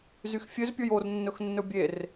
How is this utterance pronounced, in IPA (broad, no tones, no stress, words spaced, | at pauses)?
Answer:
zyxfʲøz pʲojornːɵx nːɵbʲer